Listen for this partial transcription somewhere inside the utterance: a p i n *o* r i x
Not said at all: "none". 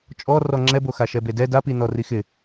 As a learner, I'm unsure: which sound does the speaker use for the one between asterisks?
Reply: ɔ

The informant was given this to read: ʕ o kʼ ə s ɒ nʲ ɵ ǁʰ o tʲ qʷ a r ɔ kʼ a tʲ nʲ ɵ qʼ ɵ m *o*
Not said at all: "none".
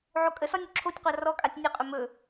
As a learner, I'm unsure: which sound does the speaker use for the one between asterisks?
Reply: ɵ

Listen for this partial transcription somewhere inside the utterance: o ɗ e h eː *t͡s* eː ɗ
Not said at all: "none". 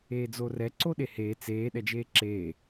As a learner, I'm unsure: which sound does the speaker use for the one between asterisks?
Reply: t͡s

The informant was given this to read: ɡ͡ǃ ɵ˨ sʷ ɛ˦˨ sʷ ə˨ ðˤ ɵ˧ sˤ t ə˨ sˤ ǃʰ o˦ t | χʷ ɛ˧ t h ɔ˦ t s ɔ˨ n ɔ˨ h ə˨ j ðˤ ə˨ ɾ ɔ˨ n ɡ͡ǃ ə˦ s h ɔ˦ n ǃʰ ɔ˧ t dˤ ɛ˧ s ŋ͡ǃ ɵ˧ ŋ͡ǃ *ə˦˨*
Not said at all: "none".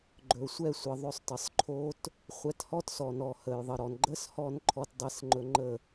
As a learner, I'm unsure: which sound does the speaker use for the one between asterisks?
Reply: ə˦˨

